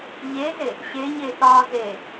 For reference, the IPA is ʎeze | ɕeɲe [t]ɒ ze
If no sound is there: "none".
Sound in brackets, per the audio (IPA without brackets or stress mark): t